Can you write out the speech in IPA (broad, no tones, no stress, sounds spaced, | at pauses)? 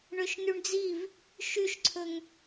ɳ ø ʃ n y ɳ d͡z i v | ʃ y ʃ ǀʰ ɵ ŋ